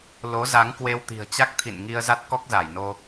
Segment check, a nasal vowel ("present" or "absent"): absent